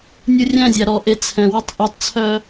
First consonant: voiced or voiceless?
voiced